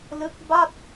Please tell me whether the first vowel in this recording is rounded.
no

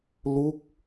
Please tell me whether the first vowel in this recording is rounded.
yes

